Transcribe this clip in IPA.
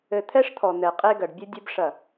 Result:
ɘ˨ t̪ʰ ɛ˦ ʂ t̪ʰ ɔ˨ n̪ ɛ˨ qʼ e˦ ɡ ɐ˨ ɖ bʲ ɨ˦ dʲ ɨ˦ b ʂ ɐ˦˨

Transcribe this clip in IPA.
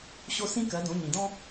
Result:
ɕ o˥ s ĩ˥ k ɜ˨˥ d õ˨˥ ɲ ĩ˨ d ɔ̃˥

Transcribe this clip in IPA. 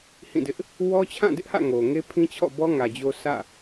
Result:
h ĩ˦˨ d ɪ˦ ʔ | w ɔ˦ t͡ɕʰ ã˦˨ d ɪ˦ ʔ h ä̰˦˨ ŋ o˨ ŋ e˦ pʰ ĩ˦ t͡ɕʰ ɔ̰˦˨ b ɔ˦ ŋ ä˨ d͡ʑ o˦ sʰ ä̰˦˨

